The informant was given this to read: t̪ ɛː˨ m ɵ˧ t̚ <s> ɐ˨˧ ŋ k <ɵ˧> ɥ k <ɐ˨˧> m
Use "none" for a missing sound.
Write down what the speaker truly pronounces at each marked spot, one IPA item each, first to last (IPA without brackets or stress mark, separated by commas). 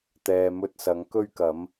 s, ɵ˧, ɐ˨˧